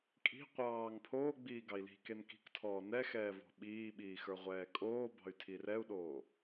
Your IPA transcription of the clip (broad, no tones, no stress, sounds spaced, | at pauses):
kʼ i̤ qʷ ɑː ŋ pʰ oː ɡ͡b iː ɡ ɑ i̯ l i̤ k e n k i̤ k tʰ ɔː n ɛ x ɛː v ɔ̤ ɓ iː ɓ iː x ə˞ ʁʷ ɛː kʼ oː b ɑ̤ y̯ tʰ i r ɛ u̯ ɗ oː